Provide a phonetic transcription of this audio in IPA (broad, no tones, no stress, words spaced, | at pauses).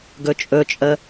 ɡɵt͡ʃʼɵt͡ʃʼə